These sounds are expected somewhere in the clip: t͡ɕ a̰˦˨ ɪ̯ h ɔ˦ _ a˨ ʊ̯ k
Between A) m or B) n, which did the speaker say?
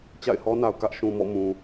B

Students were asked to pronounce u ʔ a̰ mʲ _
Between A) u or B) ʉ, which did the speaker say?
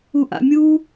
A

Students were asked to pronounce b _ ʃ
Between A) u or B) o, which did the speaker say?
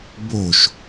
B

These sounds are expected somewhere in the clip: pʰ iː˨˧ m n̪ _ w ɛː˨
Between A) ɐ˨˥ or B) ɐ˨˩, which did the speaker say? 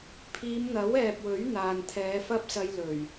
A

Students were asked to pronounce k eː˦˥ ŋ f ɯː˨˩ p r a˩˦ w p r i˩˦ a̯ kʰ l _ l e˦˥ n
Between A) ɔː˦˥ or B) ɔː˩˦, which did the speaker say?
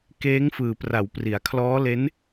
A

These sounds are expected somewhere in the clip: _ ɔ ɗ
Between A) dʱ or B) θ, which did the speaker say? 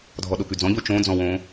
A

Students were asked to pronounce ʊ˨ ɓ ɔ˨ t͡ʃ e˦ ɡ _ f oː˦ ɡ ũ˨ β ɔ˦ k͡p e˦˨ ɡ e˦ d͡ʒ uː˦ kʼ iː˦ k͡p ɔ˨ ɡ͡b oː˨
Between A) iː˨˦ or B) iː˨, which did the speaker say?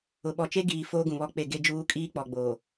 B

